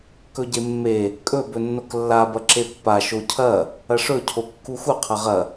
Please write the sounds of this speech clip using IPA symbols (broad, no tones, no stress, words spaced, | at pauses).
kɵɟemːe | kʼɵb ɵnːoklːa bɐǁepːa ʃocʰɐ | ɐʂɵ cʰokːuxu qʰɐʁɐ